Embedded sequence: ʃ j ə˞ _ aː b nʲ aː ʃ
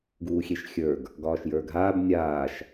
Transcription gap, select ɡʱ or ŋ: ɡʱ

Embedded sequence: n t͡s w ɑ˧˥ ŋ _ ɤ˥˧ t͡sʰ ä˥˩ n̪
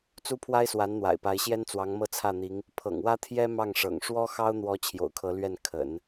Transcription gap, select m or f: m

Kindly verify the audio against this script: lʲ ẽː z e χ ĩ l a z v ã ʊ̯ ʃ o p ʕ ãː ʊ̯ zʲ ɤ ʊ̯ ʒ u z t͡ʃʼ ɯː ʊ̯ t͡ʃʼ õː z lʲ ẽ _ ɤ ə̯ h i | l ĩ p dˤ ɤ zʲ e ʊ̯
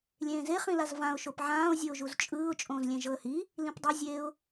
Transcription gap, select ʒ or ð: ʒ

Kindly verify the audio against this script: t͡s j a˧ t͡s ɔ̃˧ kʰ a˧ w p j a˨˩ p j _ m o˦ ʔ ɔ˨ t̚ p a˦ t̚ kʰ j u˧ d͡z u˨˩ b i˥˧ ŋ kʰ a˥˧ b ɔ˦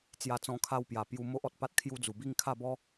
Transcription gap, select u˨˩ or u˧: u˧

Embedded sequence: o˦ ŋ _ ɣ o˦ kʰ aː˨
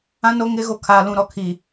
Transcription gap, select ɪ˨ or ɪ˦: ɪ˦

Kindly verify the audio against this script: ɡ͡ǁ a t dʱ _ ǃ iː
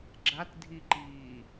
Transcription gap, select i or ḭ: i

